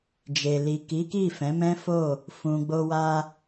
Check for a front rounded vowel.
absent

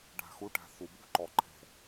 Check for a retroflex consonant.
present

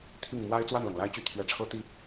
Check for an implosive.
absent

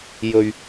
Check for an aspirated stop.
absent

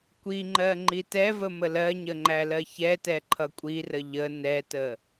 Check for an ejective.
present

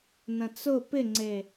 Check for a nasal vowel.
present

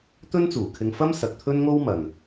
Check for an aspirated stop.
present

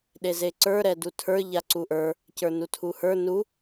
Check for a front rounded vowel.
absent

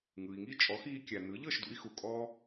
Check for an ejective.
present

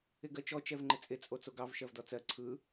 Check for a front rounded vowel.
absent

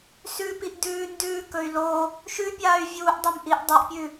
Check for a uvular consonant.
absent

